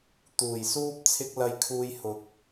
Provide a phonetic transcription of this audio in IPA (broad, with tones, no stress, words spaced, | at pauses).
t̪uː˨˩j suː˥p̚ t͡sʰɪ˧k̚ lɐ˧jkʰuː˧j hʊ˨k̚